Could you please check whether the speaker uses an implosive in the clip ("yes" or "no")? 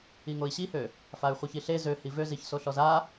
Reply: no